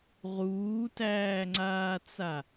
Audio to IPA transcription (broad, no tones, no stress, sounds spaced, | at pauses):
ʁ uː t æː ŋ͡ǀ aː t͡s a